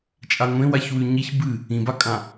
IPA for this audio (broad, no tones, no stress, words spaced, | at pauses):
t͡ʃʼaŋʷẽwaçwʉ ɲiç bɨ | ĩbakʼã